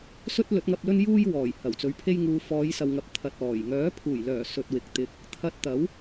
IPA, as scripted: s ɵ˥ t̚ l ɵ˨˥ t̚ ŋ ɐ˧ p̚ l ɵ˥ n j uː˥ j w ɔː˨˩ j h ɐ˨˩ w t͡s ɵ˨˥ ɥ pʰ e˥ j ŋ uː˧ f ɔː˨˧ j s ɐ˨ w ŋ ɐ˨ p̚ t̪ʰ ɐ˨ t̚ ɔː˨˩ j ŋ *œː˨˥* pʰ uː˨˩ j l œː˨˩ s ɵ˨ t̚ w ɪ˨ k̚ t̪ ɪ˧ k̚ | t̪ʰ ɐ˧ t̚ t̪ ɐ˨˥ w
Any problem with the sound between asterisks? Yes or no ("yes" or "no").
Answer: no